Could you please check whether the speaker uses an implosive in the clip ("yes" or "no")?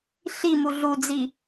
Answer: no